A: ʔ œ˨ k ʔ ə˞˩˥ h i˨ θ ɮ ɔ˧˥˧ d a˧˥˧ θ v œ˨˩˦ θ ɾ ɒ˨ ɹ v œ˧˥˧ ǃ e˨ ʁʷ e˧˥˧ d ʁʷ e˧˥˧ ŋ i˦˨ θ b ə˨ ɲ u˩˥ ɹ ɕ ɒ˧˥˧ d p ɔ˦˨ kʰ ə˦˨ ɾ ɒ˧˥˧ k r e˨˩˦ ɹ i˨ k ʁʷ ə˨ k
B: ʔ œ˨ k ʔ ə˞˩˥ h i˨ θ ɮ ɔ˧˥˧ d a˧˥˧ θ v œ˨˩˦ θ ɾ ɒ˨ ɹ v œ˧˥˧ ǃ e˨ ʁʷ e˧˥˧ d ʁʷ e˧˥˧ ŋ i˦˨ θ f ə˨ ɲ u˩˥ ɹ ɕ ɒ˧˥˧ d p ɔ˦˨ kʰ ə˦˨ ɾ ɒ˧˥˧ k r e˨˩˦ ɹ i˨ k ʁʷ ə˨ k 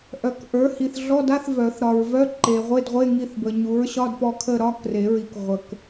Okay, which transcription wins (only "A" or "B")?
A